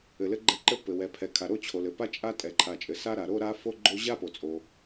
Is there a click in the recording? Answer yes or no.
yes